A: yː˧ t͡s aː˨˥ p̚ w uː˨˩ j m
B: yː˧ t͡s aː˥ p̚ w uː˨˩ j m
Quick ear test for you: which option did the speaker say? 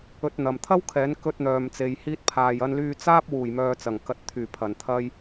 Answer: B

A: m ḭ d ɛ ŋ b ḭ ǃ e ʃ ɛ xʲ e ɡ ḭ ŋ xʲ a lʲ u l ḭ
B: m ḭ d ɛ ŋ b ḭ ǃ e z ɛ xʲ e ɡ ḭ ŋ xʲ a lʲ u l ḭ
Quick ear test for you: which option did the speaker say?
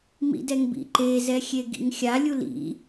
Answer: B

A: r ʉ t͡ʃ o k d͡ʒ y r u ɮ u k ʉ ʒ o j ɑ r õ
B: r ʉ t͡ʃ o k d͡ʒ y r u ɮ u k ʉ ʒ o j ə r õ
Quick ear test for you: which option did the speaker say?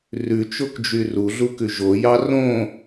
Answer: A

